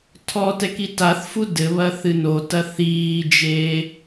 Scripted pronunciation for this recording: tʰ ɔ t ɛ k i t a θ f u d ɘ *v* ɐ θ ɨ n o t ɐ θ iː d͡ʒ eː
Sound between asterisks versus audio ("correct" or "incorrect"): incorrect